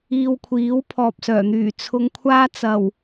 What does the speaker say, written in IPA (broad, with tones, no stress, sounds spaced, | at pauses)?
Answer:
iː˧ w kʷʰ iː˨˥ w pʰ ɔː˨ p̚ s œː˨˩ n̪ yː˨˩ t͡sʰ ʊ˧ ŋ kʷʰ aː˥ t͡s ɐ˨˩ w